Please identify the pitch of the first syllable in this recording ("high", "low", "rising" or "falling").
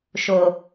low